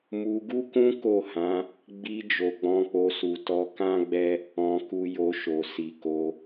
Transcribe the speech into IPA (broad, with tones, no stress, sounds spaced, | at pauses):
m u˧ ɡ u˦ k ũ˦ k o˦˨ h ã˨˦ | ɡ͡b i˧ d͡ʒ o˨ ɡ͡b ɔ̃˧ k͡p o˧ s u˨ t ɔ˧ k ã˦ ɡ͡b ɛ˦ | ɔ̃˧ k u˧ j o˧ ʃ o˨ s i˨ k o˧